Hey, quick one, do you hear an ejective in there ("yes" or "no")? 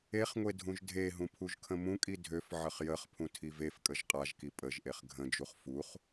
yes